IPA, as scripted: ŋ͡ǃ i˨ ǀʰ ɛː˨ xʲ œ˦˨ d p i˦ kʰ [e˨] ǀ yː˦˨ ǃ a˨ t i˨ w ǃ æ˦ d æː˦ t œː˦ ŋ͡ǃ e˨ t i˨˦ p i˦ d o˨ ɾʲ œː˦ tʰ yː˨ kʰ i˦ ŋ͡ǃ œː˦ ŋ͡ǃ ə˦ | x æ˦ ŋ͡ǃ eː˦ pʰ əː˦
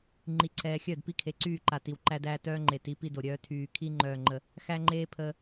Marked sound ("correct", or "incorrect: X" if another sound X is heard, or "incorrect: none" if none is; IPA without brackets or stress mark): correct